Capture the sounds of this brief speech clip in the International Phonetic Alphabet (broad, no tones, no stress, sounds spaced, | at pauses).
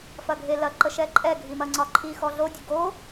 f ɐ ɡʱ e l ɐ ǃ ə ʃ ɛ ǃʼ ɛ ɡʱ i m ɐ ŋ͡ǀ ɒ ǃʰ i x ɔ ɮ o dʲ ə ɡ o